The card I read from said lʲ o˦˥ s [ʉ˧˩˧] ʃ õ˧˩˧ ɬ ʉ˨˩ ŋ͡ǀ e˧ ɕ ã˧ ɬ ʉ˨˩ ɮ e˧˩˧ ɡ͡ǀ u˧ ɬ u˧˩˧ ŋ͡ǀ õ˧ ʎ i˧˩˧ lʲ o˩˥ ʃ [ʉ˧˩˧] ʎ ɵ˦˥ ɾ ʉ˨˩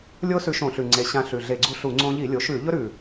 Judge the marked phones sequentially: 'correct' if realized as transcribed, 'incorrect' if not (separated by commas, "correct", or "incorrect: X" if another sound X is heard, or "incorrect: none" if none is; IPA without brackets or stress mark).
incorrect: ʉ˧, correct